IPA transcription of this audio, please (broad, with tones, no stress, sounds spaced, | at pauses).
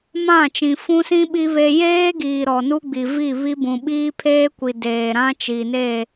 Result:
m ã˦˨ t͡ʃ ĩ˨ f ũ˦ s ĩ˦ ɓ i˦ β e˦ j eː˦ ɡ iː˨ ɾ ɔ˨ n u˦ ɡ͡b i˨ v i˦˨ β i˦ b ũ˨ ɓ iː˦ pʰ eː˦ kʷ i˨ d eː˨ ɾ ã˦ t͡ʃ i˨ n e˦˨